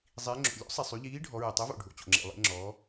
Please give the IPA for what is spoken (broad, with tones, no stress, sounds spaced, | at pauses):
zˤ i˩˧ ŋ͡ǁ o̰˩ lʲ o̰˨˥ sˤ e˩ sˤ y˩˧ ʎ iː˨˥ ɖʱ ɔ˩˧ ɹ e˩ tˤ ɛ˨˥ v o̰˩ ɖʱ o̰˩ t͡ɕ o̰˩ ŋ͡ǁ ḛ˩ lˠ ḛ˩˧ ŋ͡ǁ ɔː˩˧